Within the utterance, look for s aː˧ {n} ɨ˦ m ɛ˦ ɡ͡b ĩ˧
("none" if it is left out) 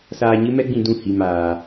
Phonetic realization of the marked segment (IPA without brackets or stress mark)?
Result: ɲ